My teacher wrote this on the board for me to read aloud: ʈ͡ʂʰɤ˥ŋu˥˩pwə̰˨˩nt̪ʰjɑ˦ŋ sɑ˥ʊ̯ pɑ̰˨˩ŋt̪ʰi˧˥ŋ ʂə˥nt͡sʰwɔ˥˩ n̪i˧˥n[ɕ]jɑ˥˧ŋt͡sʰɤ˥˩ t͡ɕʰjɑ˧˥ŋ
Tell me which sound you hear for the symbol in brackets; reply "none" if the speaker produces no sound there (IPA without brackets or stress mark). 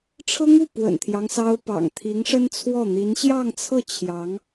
ɕ